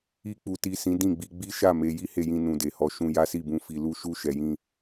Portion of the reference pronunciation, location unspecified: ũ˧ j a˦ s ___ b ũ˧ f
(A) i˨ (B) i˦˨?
B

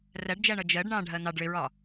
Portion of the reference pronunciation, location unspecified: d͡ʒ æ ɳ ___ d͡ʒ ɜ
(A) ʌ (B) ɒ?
A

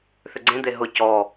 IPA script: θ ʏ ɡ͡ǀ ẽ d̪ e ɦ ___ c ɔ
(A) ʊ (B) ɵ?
A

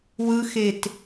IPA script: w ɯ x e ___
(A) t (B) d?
A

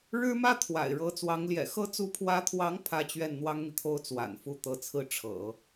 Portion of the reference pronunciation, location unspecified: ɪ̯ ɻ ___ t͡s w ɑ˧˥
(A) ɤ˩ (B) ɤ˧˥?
B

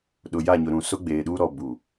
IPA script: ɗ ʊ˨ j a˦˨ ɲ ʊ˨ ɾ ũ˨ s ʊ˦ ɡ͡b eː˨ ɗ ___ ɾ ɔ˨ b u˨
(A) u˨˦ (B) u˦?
B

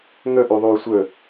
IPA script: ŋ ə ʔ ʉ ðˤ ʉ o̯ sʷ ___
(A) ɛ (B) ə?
B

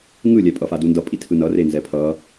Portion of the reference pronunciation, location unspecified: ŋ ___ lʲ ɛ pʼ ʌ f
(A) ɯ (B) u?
A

